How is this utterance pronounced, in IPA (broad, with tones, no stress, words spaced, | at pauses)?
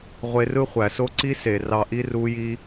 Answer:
ʁʷe˧rɯ˦χʷæ˨so˦ ǀi˦se˨ rɑ˧ʔi˦ ru˦ji˦